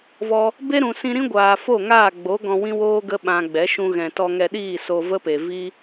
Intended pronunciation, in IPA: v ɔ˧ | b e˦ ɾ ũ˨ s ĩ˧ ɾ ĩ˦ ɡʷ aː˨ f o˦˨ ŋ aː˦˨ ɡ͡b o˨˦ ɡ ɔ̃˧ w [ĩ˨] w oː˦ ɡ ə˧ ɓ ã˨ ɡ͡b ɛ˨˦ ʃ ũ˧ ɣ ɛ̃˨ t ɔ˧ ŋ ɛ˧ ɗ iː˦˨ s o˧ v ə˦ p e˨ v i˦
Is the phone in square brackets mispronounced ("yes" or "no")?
yes